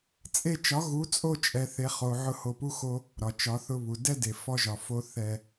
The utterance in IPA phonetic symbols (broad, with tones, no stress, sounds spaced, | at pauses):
t͡sʼ e˧ t͡ʃ ɒ˨˦ ɣ u˨˦ t͡sʼ o˧ t͡ʃʼ ɛ˨ θ e˨ χ o˨ ʕ ʊ˦ h o˧ p u˦ x o˦ | ɾ ɒ˨ t͡ʃ ɒ˨˦ θ ʊ˧ β u˨ d ɛ˦ d e˨ f ɔ˧ ʒ ɒ˨ f o˦ θ ɛ˧